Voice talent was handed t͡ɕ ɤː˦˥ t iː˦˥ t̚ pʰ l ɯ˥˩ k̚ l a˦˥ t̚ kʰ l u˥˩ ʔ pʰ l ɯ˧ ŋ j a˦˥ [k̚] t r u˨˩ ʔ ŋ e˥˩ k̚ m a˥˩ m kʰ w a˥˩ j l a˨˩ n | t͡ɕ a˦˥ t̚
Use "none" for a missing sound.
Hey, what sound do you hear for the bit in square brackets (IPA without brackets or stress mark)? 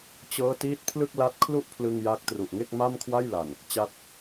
k̚